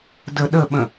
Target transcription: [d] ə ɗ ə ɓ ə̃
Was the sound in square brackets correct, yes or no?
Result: yes